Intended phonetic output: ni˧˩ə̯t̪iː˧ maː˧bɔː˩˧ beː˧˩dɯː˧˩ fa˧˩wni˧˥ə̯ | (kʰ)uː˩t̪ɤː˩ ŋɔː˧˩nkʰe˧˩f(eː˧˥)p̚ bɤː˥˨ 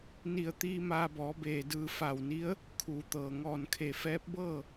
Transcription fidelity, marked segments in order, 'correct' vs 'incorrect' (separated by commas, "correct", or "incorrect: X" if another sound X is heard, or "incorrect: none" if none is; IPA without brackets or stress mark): correct, incorrect: ɛː˧˥